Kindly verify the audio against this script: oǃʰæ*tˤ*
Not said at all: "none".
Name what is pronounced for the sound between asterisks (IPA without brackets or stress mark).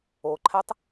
tˤ